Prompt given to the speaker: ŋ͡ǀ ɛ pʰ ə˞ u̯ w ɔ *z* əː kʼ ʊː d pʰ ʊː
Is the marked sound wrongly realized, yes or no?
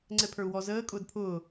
no